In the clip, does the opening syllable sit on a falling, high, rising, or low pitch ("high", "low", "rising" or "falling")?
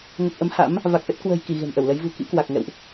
low